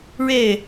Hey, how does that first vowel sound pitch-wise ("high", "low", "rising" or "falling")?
falling